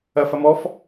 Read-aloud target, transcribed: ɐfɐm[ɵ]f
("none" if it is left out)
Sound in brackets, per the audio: ɔ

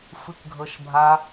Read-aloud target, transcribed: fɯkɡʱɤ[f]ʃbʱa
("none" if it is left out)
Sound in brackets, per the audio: none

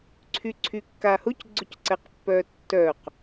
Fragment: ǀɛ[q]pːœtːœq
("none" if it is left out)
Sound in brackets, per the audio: q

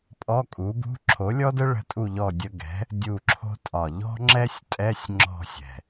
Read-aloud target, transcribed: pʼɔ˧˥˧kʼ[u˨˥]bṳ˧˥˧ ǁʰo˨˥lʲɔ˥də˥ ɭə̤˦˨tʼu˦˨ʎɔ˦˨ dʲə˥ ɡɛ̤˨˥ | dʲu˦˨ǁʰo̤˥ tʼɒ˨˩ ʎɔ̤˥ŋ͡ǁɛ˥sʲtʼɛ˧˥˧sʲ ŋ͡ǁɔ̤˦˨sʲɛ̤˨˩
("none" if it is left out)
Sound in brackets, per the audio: u˨˥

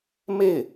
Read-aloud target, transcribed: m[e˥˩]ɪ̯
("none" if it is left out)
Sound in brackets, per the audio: e˥˩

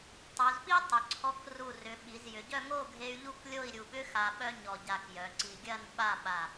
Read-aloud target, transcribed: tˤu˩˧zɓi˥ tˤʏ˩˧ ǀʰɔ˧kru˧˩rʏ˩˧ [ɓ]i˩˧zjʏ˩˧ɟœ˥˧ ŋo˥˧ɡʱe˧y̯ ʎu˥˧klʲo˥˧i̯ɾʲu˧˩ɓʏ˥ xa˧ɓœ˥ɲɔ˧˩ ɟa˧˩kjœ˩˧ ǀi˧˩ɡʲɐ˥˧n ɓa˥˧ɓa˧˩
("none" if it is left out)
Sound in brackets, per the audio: ɓ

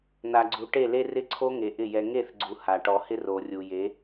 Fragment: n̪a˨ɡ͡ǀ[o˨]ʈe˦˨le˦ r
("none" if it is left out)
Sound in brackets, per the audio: u˨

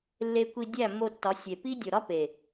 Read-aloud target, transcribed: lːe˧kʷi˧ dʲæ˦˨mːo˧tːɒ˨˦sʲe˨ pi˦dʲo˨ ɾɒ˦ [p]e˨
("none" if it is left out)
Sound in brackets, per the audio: p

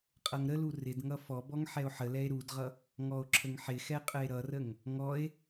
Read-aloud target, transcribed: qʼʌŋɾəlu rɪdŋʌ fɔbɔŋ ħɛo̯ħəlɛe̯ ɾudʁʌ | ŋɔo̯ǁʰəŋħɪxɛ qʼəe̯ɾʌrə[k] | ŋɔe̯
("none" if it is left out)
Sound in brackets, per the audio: ŋ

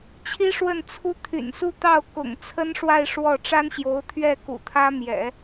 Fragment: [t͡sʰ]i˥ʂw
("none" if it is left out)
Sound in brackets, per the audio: t͡ɕʰ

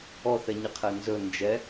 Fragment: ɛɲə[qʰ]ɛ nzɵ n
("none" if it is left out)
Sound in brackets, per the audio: qʰ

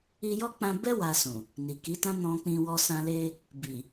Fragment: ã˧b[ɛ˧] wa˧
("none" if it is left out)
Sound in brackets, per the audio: ɛ˦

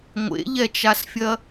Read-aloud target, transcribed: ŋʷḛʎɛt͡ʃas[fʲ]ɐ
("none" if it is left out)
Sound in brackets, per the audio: fʲ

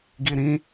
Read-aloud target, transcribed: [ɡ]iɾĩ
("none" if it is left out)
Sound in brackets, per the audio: ɡ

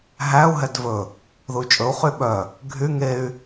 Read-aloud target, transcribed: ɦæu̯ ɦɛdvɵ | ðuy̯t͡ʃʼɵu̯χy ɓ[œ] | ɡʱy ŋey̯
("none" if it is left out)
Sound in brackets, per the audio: œ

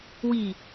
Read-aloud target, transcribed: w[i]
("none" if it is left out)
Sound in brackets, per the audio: i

